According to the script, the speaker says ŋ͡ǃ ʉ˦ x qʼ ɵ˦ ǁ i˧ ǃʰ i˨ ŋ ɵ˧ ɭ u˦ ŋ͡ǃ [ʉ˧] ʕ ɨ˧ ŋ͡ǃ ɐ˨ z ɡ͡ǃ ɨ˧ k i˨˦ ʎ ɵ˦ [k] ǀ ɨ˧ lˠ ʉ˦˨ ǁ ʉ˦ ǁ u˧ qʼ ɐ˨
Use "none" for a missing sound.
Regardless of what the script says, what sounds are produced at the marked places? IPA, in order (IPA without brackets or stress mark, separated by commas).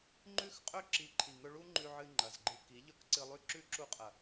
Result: ʉ˧, k